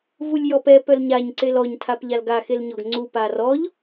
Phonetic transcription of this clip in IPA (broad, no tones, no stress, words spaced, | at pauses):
vulʲjɔpɛ pœlɲaɲ ǀelɔɲ tʰapʎalɡa xelɲɔɡŋ͡ǀu parɔʎ